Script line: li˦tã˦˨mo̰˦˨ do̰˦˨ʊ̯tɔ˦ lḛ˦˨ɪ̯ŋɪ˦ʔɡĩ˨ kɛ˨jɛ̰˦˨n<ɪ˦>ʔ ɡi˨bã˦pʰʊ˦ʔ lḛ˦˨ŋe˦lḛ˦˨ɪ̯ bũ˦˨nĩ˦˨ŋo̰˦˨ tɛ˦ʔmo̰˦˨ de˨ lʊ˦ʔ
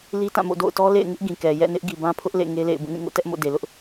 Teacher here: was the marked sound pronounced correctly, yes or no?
yes